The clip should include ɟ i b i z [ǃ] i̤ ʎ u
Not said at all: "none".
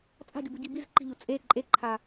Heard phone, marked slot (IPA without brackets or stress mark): ǃ